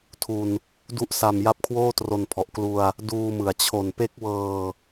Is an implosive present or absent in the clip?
absent